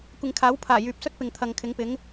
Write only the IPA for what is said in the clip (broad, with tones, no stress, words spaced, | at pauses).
kʷɪ˨ŋkʰaː˨˥wpʰaː˨˩ jyː˨p̚sɵ˥t̚pɪ˨ŋt̪ʰɐ˨ŋ kʰɪ˨˥ŋpɪ˨˥ŋ